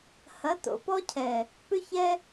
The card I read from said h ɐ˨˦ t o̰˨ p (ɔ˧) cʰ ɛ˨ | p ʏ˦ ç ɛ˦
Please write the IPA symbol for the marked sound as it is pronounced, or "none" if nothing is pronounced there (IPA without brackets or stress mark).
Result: ɔ˦